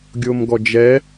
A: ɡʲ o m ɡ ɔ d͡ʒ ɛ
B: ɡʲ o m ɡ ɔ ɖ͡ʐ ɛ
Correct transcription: A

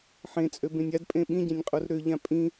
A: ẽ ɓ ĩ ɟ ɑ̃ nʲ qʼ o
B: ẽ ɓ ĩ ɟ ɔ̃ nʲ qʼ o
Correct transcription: A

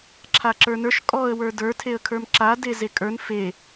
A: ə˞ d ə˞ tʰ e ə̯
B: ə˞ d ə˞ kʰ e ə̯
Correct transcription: A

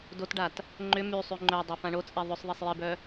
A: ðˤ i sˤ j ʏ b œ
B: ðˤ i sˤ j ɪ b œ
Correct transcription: B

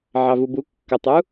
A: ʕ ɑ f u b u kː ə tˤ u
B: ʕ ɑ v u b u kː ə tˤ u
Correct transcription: B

